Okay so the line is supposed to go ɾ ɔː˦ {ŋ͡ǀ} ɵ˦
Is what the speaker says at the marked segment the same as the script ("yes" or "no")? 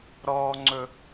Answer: yes